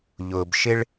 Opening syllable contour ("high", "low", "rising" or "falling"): low